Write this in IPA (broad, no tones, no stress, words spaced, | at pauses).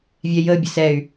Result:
vʲɛjə bʲəsɛy̯